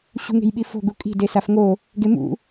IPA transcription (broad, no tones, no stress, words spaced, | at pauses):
ɕṳŋe̤jɓifo̤ ɡukʼi̤ desafŋo | ɡemṵ